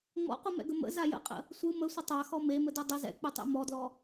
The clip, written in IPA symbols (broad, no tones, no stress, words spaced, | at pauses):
ŋ͡mɔ̰qʷɯmɛ̰ɡə mə̰za jə̰qʼə̰ | sʷɯ məsʷə tˤaxɔ memədɯ dˤə zɛ̰k͡pɯtˤḛ mɔdlɔ